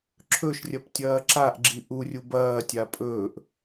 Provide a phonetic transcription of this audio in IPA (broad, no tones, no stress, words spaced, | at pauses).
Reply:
ǁʰɵʃrʲɐp tʲɐːǁaʔɡ͡ǁi ʔurʲu bɐːtʲa pʼɵːʔ